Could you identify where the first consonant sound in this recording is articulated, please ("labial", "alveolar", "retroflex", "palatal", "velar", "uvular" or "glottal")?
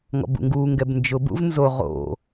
velar